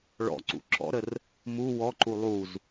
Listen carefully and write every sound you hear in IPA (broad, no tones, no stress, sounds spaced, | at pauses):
ɭ ɔ̰ ǀ ṵ ǁ ɔ̰ ɾ ə r | m u w ɔ ǃ u lˠ u z